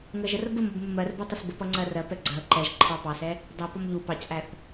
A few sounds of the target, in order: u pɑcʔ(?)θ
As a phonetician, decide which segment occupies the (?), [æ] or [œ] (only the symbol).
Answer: æ